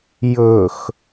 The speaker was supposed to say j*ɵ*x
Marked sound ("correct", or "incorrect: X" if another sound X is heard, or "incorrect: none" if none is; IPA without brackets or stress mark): correct